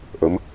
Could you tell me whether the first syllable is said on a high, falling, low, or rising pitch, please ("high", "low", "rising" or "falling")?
rising